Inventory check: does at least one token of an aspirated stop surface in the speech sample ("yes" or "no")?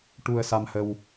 no